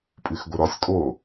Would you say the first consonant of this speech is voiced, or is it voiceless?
voiceless